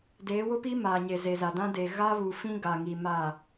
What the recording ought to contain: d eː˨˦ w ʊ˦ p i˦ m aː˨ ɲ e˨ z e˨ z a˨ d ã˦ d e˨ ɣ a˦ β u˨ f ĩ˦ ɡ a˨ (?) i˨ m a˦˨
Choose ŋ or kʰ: ŋ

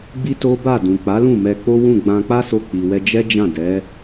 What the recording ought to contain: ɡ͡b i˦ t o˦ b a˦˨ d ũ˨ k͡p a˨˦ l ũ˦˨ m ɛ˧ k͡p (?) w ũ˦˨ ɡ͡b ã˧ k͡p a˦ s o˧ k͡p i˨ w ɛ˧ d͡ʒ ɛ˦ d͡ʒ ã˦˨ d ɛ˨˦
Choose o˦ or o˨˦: o˦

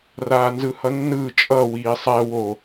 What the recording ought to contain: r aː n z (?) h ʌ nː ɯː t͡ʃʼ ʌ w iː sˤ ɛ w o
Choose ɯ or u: ɯ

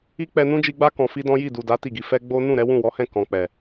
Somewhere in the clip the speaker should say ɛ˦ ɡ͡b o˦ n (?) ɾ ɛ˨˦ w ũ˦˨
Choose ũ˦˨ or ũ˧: ũ˦˨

